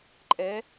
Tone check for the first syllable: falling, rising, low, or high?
rising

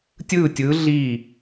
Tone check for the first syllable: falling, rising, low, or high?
falling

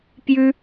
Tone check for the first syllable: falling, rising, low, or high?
high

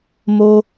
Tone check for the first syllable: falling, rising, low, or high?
high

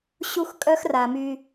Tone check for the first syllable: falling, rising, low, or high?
high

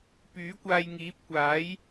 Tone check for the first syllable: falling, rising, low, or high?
rising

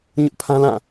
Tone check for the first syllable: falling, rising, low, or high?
high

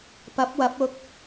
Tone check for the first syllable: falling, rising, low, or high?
rising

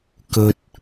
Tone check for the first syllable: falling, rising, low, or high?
high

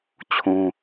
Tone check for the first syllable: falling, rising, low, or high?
high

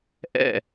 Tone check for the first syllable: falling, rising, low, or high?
falling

